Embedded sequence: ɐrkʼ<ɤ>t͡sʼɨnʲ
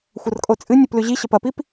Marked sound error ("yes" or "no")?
yes